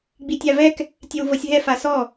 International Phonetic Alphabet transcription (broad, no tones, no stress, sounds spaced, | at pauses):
ɡ͡b i tʲ a v ɛ k | tʲ ɛ w v ɤ sʲ ɦ ɛ f a s ɔ